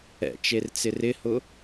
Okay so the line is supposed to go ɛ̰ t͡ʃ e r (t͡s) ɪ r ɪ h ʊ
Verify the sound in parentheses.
correct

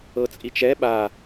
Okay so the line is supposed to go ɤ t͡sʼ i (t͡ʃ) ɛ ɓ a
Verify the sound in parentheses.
correct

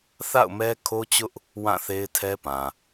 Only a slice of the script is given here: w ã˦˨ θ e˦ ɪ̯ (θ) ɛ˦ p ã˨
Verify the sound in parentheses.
incorrect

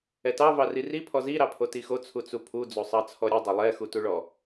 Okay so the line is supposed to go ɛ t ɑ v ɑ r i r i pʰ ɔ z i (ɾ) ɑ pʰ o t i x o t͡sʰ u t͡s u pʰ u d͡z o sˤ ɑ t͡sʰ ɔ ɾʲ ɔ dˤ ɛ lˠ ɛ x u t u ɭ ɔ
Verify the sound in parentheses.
correct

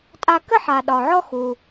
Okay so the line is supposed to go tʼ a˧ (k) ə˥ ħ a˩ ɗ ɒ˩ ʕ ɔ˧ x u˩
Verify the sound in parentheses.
correct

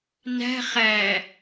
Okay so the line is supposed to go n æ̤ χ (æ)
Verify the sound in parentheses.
correct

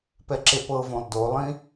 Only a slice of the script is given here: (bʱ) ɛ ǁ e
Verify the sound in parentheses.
incorrect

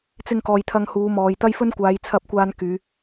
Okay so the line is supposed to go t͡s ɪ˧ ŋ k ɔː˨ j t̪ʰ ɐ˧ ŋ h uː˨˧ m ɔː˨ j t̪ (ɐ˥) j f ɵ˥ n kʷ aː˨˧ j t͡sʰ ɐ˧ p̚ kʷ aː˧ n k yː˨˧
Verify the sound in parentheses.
correct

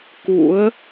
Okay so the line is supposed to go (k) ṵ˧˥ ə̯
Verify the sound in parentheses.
correct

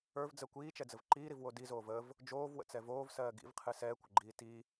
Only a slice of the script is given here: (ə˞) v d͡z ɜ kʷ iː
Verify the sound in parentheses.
correct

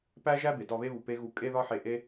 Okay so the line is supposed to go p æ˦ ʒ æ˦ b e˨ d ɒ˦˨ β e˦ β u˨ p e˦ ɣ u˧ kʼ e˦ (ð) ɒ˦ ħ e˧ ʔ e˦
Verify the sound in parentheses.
correct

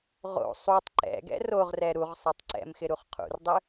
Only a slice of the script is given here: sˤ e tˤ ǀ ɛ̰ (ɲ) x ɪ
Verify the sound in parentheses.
incorrect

